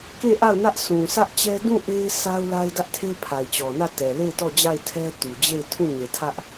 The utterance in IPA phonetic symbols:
ke˦˨ʔa˦˨ʊ̯nä˦ʔsʰũ˨ sä˦ʔt͡ɕɛ˦ dũ˦˨ʔe˦ɪ̯ sa˦ʊ̯la˦ɪ̯dä˦ʔtʰe˦ pʰa˨ɪ̯t͡ɕɔ˨nä˦˨ tɛ˨le˦˨ɪ̯tɔ˦˨d͡ʑa˦˨ɪ̯ tʰɛ˦tu˨d͡ʑe˦˨ɪ̯ tʰũ˦˨ɲe˨tʰä˦ʔ

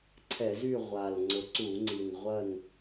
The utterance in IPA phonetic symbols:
ǀʰɛ˧˩˧zy˥˨ ʁʷa˨˩l ŋ͡ǀʊ˨˩ǀu˧˩˧ŋ͡ǀi˨˩n ʁʷɐ˥˨n

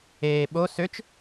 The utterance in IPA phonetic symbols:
eː ɓo søt͡ʃ

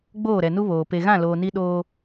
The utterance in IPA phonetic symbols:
ɡ͡boː˦˨ɾɛ˨nu˦ βoː˨ pe˨ɣã˦˨loː˨ ni˦ɗoː˦

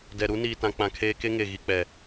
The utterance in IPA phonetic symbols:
dɛ˨ɾu˦niː˨tã˨ k͡pã˨ kʰeː˦ke˦ŋe˨ ɣi˨k͡pɛ˨

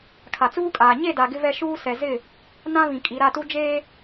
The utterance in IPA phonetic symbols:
kʰa˨t͡suː˦kʼaː˨ ɲe˦˨da˨ ɡɪ˦vɛ˦ ʃuː˦ sɛ˨zɪ˦˨ | nã˦βĩ˨kʼi˨ ɾa˦˨tu˦ d͡ʒeː˦

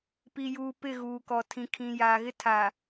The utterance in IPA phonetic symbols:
pi˨juː˨pɪ˦˨ ɣuː˨kɔ˨ tʰĩ˨ kʰĩ˨ jaː˨ɣɪ˦ tʰa˨

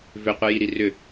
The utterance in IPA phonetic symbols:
vʏqʷɛjiɾi rʏ

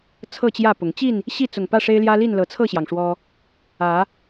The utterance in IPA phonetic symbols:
t͡sʰɤ˥˨t͡ɕjä˥˨pʊ˨˦ŋ t͡ɕi˥˨n | ɕi˥˨t͡sʊ˨˩ŋ pä˥˨ʂe˦ɪ̯ljä˦li˥˨n lɤ˨˦t͡sʰɤ˥˨ɕjɑ˩ŋ ʂwɔ˦ | ä˨˦

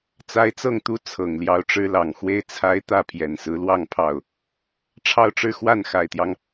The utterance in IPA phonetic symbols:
t͡sa˥ɪ̯ t͡sɤ˥˩ŋt̪u˥ t͡sʰɤ˨˩ŋljɑ˧˥ʊ̯ʈ͡ʂɻ̩˥lɑ˨˩ŋ xwe˥˩ɪ̯t͡sʰa˥ɪ̯ t̪ä˥˩pʰjɛ˨˩nsɹ̩˧˥lwɑ˥˧ŋ pʰɑ˥˩ʊ̯ | ʈ͡ʂʰɑ˥˧ʊ̯ʈ͡ʂɻ̩˥˧ xwa˥˩nxa˨˩ɪ̯t̪jɑ˦ŋ

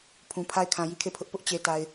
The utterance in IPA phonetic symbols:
pʰũ˨pʰa˦ɪ̯ kʰã˨ji˦˨kʰe˦˨pʰʊ˦ʔ pʊ˦ʔt͡ɕe˨ ta˨ɪ̯

